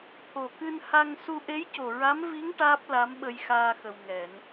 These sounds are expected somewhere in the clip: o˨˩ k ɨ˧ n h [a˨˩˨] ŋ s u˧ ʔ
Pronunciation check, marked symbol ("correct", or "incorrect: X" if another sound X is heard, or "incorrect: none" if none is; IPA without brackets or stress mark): incorrect: a˧